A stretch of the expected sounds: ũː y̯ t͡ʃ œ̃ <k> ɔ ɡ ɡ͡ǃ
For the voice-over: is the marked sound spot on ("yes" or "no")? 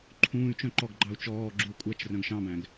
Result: no